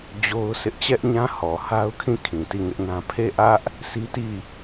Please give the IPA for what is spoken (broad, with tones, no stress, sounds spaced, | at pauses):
d͡ʑ o˦ ʊ̯ s ɪ˦ ʔ t͡ɕ ɛ˦ ʔ ɲ ã˦ h ɔ˨ h a˦ ʊ̯ kʰ ĩ˦˨ kʰ ĩ˨ t i˦˨ ŋ ɪ˦ ʔ n ã˦ pʰ e˦˨ ʔ ä˦ ʔ | sʰ i˦ t i˦˨